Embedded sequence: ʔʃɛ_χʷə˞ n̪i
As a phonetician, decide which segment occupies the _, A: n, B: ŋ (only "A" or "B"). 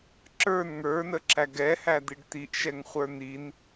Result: B